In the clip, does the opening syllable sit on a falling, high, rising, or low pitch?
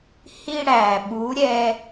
high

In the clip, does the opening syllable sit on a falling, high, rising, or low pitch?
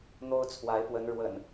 high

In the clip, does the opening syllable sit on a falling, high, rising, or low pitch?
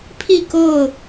falling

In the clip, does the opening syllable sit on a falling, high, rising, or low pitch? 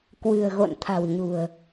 low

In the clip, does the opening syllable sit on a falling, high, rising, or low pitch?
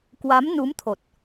rising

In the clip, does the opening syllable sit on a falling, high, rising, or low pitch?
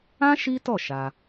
high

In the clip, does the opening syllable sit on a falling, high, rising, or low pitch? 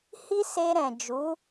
high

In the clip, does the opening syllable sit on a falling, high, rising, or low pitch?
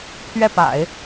falling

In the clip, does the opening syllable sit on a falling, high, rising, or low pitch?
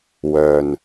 low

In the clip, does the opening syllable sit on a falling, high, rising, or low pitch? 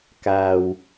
low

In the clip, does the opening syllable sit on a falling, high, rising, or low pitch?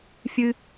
high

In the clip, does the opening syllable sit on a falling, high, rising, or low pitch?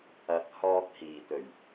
low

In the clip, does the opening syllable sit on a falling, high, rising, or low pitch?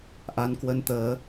rising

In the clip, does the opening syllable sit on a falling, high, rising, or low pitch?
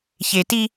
low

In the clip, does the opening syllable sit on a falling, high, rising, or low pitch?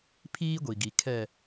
high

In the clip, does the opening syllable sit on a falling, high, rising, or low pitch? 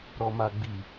low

